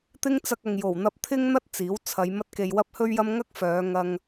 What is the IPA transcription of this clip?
t̪ ɪ˥ ŋ t͡s ɐ˧ k̚ ɐ˨ ŋ j o˨˩ w n̪ ɐ˧ p̚ t̪ʰ ɪ˥ ŋ n̪ ɐ˥ t̚ t͡s iː˨˥ w t͡sʰ ɐ˨˧ j m ɐ˥ t̚ k e˧ j w ɐ˥ p̚ h ɵ˥ ɥ j ɐ˥ m ŋ ɐ˥ k̚ f œː˨˧ ŋ ɐ˧ ŋ

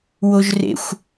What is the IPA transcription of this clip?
w o ʒ r ḛ xʷ

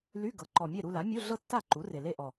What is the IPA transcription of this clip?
l y˧˥˧ ɡ ɤ˩˥ ǃ ɔ˨˩ mʲ e˥˩ ɾ u˥˧ l a˩˥ mʲ u˧˥˧ ɮ ɤ˥˧ tː a˥˩ ǃ u˩˥ r e˨˩ l e˥˧ ʔ ɔ˨˩

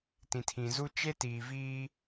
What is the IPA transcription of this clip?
t ĩ˨ tʰ ĩ˨ z u˦ t͡ʃ e˦ t iː˨ v iː˦

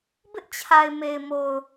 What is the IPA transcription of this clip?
b ɪ˦ ʔ t͡ɕʰ a˨ ɪ̯ m e˨ ɪ̯ m o˨ ʊ̯

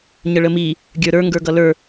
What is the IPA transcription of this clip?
ɲ ə ɭ ə m i | ɡʲ ə˞ ɾ ə˞ ŋ ɡ ə˞ ɡ ʌ l ə˞

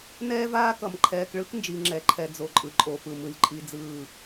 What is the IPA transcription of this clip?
n ɛː˦ v aː˦ k ʌ˨ m ǃʰ ɛː˨ k ɭ ɯ˦ k n d͡ʒ i˨ ŋ͡ǁ ɛ˨ ǃʰ ɛ˨ d͡z o˨ ǃʼ ɯ˨ ǃʼ o˨ p ɯ˨ m ɯ˨ lʲ ǃʼ i˦ d͡z ɯː˦˨

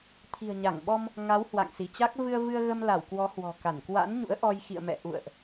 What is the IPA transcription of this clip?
t̪ʰ i̤˨˩ ə̯ ɲ a˧˩ ŋ ɓ ɔ˧ m | ŋ a˨˦ w h w a̰˧˨ ŋ s i˧˩ t͡ɕ a˦˥ k̚ v ɨ˧ ə̯ v ɨ˧ ə̯ ɣ ə˧ m l a˧˩ w k w ɔ˨˦ h w ɔ̤˨˩ k a˧˩ n k w a̰˧˥ n ɲ ṵ˧˥ ə̯ ʔ ɔ˧ j x ḭ˧˨ ə̯ m ɛ̰˧˨ ʔ ṵ˧˨ ə̯ ʔ

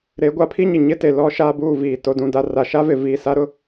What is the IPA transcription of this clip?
ɾ e˨˦ ɡʷ a˦ pʰ i˦ ɲ ɪ˨ ɲ ɪ˦ t e˨ l ɔ˦ ʃ aː˦ b uː˦˨ v iː˨ t o˨ d ũ˨ d a˨ r a˨ ʃ a˦ v ɪ˨ v i˨ s a˦ ɾ ʊ˦

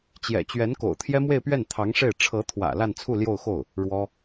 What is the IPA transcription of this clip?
t͡ɕ j ɛ̰˨˩ t͡ɕ ɥ ɛ˧˥ n k o̰˨˩ ʊ̯ t̪ʰ j ɛ˥ m w e˥˧ ɪ̯ p ɥ ɛ˥˩ n t̪ʰ ɑ˧˥ ŋ ʂ e˥˩ ɪ̯ ʈ͡ʂʰ ɤ˧˥ t̪ʰ w ä̰˨˩ l a˥˧ n t͡sʰ u˥˧ l j o˥˧ ʊ̯ x o˥˩ ʊ̯ | ɻ w ɔ˥

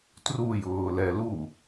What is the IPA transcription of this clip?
t r u j ʊː l ɛ l u

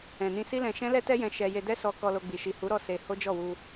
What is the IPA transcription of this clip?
ɛ̃˨ n ĩ˧ s i˦ l ɛ̃˧ ʃ ɛ̃˦ l ɛ˦ t ɛ˦ j ɛ̃˧ ʃ ɛ˧ j e˧ d ɛ˦ s ɔ˧ k ɔ˧ l o˧ ɡ͡b i˨ ʃ i˨ h u˨˦ ɾ ɔ˦˨ s e˧ h o˦ d͡ʒ ɔ˦˨ w u˧

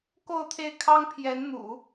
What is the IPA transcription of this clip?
k o˥˧ ʊ̯ t̪ʰ e˥˩ ɪ̯ kʰ ɑ˥ ŋ pʰ j ɛ˧˥ n n̪ ṵ˨˩˦

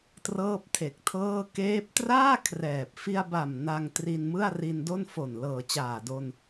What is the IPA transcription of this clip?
t r ɤː˥˩ p̚ tʰ e˨˩ k̚ tʰ ɤː˥˩ k eː˦˥ p̚ t r aː˥˩ kʰ r ɛː˨˩ p̚ f i˧ a̯ b a˨˩ m n a˧ ŋ t r i˧ n m ɯ˥˩ a̯ r i˧ n d o˥˩ n f o˨˩ n l ɤː˨˩ t͡ɕ aː˨˩ d o˧ n

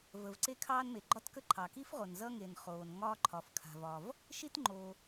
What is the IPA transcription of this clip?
v ə˩ v ǀ e˥ kʰ ɑː˥ n m e˩ ɡ͡ǃ ɒ˥ t k ə˥ ǃʰ ɑ˩ k i˥ f ʁ o˩ n z ʌ˥ ŋ e˩ n χ oː˩ n ŋ ɒː˥ ǃʰ ɒ˩ f kʰ a̤˩ v ɒ˩ v | ʃ i˥ t ŋ͡ǃ o˩

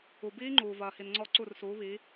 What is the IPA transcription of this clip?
u˩ b iː˦˥ ŋ͡ǃ uː˩ v ɐː˩ h i˩ n ŋ͡ǀ ɔ˧˩ ǀ u˧˩ r s uː˩˧ β i˩˧

